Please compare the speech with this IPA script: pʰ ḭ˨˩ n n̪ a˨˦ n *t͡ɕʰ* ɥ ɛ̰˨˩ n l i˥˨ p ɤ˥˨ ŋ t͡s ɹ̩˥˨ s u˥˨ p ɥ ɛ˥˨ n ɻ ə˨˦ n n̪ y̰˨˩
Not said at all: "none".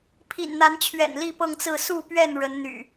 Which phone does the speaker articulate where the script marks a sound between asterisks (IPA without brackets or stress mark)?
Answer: t͡ɕʰ